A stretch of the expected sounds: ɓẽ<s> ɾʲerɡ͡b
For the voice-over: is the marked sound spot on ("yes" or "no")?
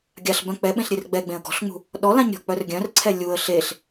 no